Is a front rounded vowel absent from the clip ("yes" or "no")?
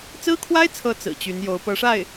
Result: no